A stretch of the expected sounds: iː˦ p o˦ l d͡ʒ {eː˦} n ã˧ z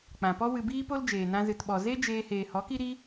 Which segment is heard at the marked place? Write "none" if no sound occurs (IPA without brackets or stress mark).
eː˨